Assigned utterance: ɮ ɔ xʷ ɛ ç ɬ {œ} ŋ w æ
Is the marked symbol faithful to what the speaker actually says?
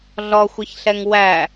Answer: no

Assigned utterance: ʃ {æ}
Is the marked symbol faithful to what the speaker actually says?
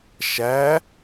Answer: yes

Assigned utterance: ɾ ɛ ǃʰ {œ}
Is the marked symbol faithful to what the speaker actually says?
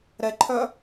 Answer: yes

